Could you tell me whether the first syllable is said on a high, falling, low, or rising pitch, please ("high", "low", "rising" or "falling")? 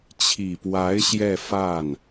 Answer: low